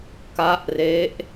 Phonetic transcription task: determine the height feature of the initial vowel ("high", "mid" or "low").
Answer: low